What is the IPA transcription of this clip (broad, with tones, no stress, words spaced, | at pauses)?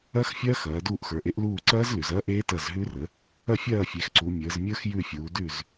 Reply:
ɐ˦˥xfʲɐː˦˥x ɐː˩˧duː˦˨ʔxə˞˩˧ʔ e˨˥ʔluː˦˨ǀɐː˦˥z lʉ˩˧zɐː˦˥ʔeː˦˥ tɐ˦˨zɦʉ˦˥rəː˨˥ | ɐ˦˨fʲɐː˦˨fʲe˩˧xǀu˩˧ mʲəː˩˧zmʲə˞˦˥xjʉ˦˨ fʲuː˩˧dʉ˦˨z